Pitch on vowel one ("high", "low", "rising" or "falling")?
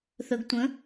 low